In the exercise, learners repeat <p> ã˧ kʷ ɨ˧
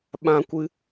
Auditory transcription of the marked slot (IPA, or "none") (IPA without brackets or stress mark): ɓ